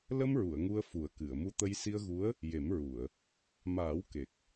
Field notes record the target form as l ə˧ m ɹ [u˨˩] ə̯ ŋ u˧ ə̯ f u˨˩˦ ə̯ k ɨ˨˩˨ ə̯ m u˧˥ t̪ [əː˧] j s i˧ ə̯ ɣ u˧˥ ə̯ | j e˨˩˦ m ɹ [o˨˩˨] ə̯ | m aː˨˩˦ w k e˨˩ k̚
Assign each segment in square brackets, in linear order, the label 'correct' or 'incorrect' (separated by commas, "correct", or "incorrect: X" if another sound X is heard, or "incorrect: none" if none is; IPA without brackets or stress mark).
incorrect: u˨˩˨, incorrect: ə˧, incorrect: u˨˩˨